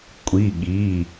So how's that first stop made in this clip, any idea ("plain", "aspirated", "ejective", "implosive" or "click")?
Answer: ejective